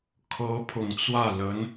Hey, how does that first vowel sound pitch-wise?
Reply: rising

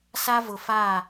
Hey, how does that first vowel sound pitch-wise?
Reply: high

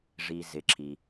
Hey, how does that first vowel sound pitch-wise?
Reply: low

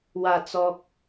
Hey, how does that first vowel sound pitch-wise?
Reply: low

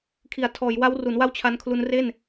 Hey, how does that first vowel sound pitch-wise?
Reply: low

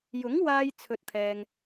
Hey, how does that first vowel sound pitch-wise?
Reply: rising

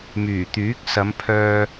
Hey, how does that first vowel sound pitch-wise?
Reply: low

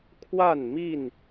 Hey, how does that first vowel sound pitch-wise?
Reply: falling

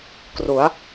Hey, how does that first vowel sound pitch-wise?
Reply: rising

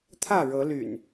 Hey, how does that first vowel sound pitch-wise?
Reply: falling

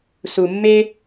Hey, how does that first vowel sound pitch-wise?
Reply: low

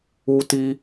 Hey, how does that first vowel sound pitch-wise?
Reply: high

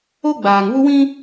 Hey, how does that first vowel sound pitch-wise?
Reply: high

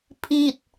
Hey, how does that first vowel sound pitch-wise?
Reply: falling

